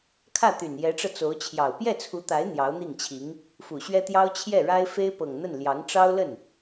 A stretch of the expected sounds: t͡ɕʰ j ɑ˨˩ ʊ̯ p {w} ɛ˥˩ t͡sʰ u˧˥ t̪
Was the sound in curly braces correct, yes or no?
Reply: no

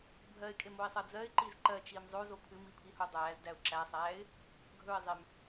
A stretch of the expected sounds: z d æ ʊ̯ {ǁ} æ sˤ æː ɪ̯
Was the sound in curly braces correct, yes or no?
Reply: yes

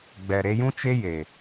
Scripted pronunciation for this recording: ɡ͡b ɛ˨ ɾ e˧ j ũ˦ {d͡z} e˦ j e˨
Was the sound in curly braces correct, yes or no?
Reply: no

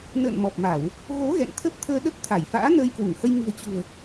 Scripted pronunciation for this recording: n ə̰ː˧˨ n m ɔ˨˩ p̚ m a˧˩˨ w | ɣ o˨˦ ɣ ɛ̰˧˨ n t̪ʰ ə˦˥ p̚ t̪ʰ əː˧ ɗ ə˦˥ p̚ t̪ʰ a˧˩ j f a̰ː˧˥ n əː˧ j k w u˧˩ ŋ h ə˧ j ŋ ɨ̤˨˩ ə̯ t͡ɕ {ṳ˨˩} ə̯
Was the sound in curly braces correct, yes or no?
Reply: yes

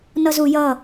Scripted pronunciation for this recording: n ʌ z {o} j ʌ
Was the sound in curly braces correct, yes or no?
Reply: no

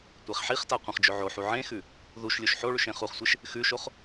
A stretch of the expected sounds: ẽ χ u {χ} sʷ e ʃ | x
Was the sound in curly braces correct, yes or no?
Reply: yes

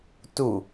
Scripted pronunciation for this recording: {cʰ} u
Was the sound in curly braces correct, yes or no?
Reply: no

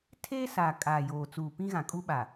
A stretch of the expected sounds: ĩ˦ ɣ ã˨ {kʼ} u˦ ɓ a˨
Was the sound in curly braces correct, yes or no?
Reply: yes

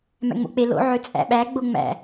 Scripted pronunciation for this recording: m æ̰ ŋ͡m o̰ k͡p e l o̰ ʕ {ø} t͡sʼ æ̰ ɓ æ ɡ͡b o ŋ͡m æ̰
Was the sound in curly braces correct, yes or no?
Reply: yes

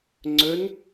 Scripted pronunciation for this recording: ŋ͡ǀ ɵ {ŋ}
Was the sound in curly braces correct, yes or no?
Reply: no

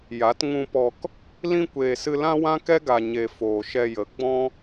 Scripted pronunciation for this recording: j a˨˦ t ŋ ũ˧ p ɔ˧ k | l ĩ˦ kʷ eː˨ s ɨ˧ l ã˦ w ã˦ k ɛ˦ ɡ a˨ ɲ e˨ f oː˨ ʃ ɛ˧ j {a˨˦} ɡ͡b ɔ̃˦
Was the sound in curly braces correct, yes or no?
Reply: no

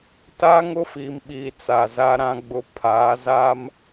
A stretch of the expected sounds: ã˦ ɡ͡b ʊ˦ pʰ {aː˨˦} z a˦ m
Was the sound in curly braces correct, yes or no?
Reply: yes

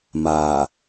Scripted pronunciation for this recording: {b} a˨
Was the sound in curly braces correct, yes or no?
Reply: no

